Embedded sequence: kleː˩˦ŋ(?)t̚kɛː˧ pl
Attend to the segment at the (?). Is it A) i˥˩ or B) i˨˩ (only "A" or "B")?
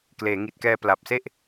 B